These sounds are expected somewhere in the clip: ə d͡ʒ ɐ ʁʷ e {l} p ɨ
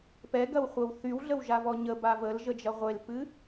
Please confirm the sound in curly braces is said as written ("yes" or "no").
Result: yes